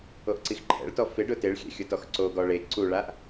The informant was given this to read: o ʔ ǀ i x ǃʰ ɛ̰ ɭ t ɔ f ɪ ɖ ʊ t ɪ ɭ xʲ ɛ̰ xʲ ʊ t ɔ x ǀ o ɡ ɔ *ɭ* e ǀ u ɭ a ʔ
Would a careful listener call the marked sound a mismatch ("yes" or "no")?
no